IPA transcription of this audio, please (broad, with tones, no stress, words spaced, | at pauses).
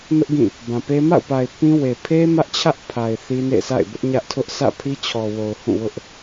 nʊ˦ʔ ɡĩ˦˨ | bã˨pe˦ ma̰˦˨ʊ̯pa˨ɪ̯ pĩ˦we˨ pʰe˦ mä˦ʔt͡ɕʰä˦ʔpʰa˨ɪ̯ θi˦nḛ˦˨ sʰa̰˦˨ɪ̯bʊ˦ʔɲä˦ʔ tʰʊ˦ʔ sä̰˦˨pʰi˦t͡ɕʰɔ˨ wo˨ʊ̯hũ˦˨wʊ˦ʔ